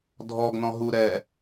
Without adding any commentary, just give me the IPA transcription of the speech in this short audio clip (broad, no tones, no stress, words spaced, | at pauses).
dʱɔɡnɔ̃ɦu ɾɛ